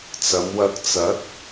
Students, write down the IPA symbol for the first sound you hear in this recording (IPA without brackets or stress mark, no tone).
t͡s